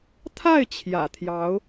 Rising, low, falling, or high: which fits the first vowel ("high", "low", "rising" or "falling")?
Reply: falling